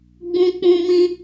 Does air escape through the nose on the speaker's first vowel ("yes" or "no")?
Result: yes